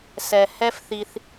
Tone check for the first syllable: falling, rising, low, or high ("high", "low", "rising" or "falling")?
low